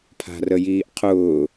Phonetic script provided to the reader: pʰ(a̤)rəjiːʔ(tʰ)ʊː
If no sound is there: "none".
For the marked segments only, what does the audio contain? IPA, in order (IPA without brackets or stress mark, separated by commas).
a̤, qʰ